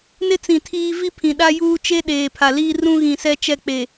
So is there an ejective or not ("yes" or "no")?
no